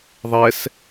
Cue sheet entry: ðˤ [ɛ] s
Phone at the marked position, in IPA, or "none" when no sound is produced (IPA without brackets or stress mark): ɛ